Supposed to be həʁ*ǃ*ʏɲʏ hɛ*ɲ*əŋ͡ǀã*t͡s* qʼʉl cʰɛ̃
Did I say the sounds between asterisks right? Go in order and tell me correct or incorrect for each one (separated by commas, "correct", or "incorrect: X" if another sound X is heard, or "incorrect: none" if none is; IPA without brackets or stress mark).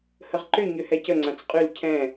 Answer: correct, incorrect: c, correct